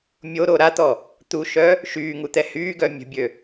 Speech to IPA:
mʲ o ɾ o ɾ a t̪ ɔ | t̪ u ʃ œ | ʃ yː ŋ u t̪ ɛ h yː ɡ œ mʲ ə̤ bʲ ø

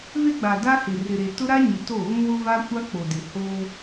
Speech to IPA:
v e˦ ɡ͡b a˨ d a˦ h ɪ˨ r ɪ˨ ɾ e˨ t ʊ˦ ɾ a˦ ɲ ɪ˨ t o˦˨ ɣ ũ˦ w ʊ˦ v a˦ kʷ a˦ k͡p o˨ d ɪ˨ h oː˦

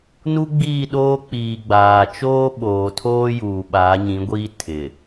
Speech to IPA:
n u˦ ɡ͡b iː˦˨ ɗ oː˦ k͡p iː˨ ɡ͡b aː˨ t͡ʃ oː˦ ɓ oː˨ tʰ oː˦ j uː˨ ɓ aː˨˦ ɲ ĩ˨˦ ɡʷ iː˦ tʰ ɪ˨

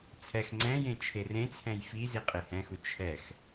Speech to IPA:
t͡sʰ ɛ x ŋ͡ǀ ɛ̃ j ẽ t͡ʃʰ e r ẽ t͡sʰ ɛ̃ j f i z i qʼ e h ɛ̃ x u t͡ʃʰ ɛ x

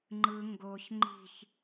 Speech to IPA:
ŋ͡ǃ ɯ ŋ ɡ o ç ŋ͡ǃ i̤ ç

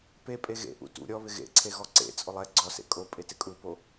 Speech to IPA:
p e pʼ e ɣ ḛ ʔ ṵ t ṵ ɾʲ ɔ β ɪ ɣ ḛ ǀʰ e ɣ ɔ ǀ ḛ t͡sʼ ʊ lˠ ɛ ɡ͡ǀ ɔ s ḛ kʼ o pʼ e t ɪ kʼ u p o

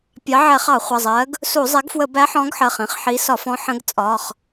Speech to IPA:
pʲ ɑ˨˦ ʕ ɛ˧˩˧ χ ɑ˧˩˧ χʷ ʌ˩˧˩ zˤ ɜ˨˦ ɡ | s u˧˩˧ zˤ ɛ˨˦ ɡ f w ə˧˩˧ b æ˨˦ ħ ɔ̃˨˦ ɡ ħ ɜ˩˧˩ χ ĩ˨˦ χ ħ i˨˦ s ɒ˧˩˧ f ɔ̃˨˦ ħ ə̃˨˦ ɡ t͡sʼ ɒ˩˧˩ χ

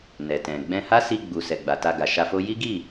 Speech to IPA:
n ɛ˨ t ɛ̃˨ ɡ͡b ɛ̃˧ h a˦ s i˧ ɡ͡b u˨ s ɛ˨ ɡ͡b a˨ t a˧ ɡ a˨ ʃ a˧ f o˦ j i˦ ɡ i˦˨

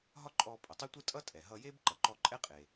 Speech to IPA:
ɦ ɒ˥ ǃʼ ɔ˧ pʼ ə˩ tˤ ə˥ tʷ ɯ˥ tʼ ʌ˥ tʼ ɛ˩ ɦ ʌ˧ j e˥ b ǃ ʌ˩ ǃ ɔ˧ ǃʼ ɛ˥ qʼ e˩

